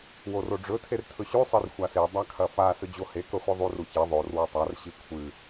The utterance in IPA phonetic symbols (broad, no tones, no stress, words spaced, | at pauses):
woroɖ͡ʐɵ tʰertʰɵɕʉ sˤirxʷase dˤakʰɐfa sɵd͡ʑohe kɵχʷiðˤur uçe ðˤor wotˤar ɕikʷʰɨ